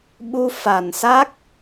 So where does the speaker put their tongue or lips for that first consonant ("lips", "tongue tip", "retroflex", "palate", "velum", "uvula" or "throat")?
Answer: lips